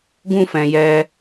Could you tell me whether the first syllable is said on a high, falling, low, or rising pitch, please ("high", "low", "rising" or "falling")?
high